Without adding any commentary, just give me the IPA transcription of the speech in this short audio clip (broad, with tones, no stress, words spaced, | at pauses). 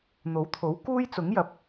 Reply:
n̪o˨˥wt̪ʰo˨˥w kuː˥j t͡sʊ˨˥ŋjɐ˨p̚